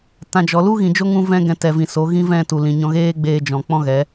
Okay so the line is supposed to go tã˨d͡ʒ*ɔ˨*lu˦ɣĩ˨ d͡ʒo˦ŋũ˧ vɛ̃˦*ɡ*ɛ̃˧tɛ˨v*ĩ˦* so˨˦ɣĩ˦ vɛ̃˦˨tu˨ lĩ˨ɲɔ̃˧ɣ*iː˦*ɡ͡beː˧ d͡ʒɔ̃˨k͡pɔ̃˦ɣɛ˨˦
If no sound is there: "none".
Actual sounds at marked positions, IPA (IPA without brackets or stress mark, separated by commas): ɔ˨, ɡ, ĩ˨, eː˦